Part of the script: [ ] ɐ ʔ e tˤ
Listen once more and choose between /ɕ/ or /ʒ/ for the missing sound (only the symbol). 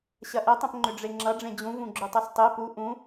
ɕ